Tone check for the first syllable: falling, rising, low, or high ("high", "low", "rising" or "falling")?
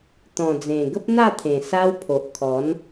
low